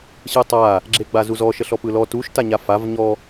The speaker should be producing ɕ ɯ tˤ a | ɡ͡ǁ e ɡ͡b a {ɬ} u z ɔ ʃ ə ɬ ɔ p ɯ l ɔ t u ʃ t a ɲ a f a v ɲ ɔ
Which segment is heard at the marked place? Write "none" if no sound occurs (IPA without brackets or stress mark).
z